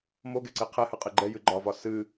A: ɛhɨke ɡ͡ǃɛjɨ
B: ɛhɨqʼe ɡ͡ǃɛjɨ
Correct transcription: B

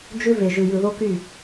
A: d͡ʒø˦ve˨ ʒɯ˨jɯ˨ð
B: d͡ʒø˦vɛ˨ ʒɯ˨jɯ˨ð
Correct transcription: A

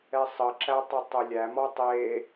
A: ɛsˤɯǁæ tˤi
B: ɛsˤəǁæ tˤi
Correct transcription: B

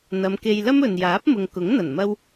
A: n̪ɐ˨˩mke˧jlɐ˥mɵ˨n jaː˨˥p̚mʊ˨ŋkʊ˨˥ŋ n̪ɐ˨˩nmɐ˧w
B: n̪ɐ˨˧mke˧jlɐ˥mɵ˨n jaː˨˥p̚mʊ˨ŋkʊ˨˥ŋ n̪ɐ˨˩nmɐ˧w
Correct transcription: B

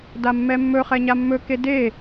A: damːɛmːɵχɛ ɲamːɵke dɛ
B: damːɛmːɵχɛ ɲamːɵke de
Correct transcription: B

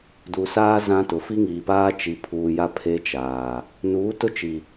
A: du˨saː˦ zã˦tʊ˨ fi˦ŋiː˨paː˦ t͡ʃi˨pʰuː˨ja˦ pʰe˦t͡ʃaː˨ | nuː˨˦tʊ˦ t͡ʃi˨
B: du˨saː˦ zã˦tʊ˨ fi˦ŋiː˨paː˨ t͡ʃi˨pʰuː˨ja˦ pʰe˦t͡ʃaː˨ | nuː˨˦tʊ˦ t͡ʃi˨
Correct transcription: A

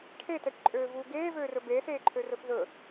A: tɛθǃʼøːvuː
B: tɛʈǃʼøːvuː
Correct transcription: B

